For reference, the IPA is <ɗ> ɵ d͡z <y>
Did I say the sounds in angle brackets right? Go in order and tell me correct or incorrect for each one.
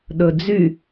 correct, correct

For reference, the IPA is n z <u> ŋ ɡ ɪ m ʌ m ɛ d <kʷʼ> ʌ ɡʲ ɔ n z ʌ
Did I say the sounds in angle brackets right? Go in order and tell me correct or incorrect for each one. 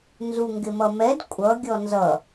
correct, correct

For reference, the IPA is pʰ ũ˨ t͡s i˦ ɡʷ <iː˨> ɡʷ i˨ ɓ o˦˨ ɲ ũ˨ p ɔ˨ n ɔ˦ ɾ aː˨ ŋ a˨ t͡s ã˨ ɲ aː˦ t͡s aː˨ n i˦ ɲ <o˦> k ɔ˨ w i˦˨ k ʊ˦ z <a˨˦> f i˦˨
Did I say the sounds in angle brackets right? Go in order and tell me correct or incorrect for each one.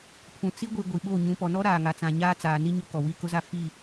incorrect, correct, incorrect

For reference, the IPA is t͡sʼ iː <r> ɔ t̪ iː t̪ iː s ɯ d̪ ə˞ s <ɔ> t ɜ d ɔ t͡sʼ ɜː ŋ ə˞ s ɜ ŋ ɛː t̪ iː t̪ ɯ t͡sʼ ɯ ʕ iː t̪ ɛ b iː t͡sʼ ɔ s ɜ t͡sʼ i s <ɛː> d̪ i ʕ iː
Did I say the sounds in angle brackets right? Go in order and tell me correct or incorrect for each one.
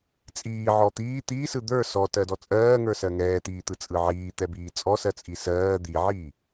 incorrect, correct, incorrect

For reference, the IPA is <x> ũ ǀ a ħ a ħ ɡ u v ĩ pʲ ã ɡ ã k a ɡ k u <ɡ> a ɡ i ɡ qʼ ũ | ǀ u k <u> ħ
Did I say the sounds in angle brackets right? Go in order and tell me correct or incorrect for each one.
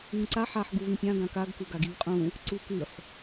incorrect, correct, incorrect

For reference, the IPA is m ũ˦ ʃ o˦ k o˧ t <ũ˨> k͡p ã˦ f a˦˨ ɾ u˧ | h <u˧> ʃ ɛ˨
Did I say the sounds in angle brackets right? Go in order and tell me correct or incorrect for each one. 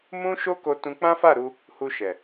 incorrect, correct

